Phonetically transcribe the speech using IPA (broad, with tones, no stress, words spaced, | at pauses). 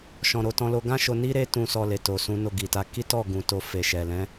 ʃɔ̃˧ɾo˧ tɔ̃˧lo˧ɡã˦ʃo˧ ni˦ɾe˦tũ˧ sɔ˧le˨to˨sũ˨˦ no˦˨ɡi˨ta˨˦ ki˦tɔ˦˨ ɡũ˨ to˧fe˨ʃɛ˨ lɛ̃˨˦